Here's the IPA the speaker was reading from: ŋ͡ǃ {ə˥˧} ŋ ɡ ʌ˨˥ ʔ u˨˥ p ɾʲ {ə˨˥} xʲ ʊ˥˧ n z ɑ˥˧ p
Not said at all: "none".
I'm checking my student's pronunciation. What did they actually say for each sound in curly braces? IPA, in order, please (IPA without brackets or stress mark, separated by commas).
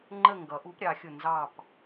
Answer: ə˥˧, ɑ˨˥